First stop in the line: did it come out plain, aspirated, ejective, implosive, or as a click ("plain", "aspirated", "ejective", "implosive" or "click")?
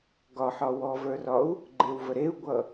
plain